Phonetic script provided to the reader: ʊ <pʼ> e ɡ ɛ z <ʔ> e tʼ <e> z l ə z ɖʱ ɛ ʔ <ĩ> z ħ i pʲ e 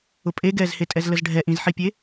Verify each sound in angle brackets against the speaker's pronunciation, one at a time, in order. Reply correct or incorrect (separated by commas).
correct, incorrect, incorrect, correct